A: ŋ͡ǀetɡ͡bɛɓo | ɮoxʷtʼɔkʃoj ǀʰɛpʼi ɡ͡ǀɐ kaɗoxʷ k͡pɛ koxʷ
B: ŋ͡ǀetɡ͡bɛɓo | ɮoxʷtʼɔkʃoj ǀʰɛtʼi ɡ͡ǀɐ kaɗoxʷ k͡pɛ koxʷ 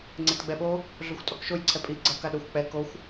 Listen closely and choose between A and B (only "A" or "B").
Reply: A